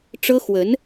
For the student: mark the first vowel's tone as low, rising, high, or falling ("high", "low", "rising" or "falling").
high